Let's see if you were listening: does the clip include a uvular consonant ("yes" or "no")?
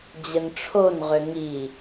yes